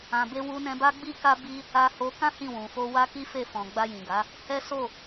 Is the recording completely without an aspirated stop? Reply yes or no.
yes